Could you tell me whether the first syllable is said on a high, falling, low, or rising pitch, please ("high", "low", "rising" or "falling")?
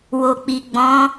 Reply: low